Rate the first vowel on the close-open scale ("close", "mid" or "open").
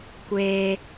mid